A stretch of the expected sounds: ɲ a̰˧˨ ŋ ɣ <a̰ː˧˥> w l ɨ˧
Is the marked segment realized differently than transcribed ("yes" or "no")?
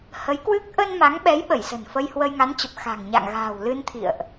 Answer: yes